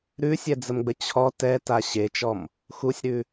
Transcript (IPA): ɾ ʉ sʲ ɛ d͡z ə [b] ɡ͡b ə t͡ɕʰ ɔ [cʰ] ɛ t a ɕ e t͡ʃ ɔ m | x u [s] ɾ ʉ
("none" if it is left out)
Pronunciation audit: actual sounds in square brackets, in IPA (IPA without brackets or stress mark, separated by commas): m, t, sʲ